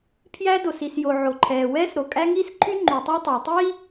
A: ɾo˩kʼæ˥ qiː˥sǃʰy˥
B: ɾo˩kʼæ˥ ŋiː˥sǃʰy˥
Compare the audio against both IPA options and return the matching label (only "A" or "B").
B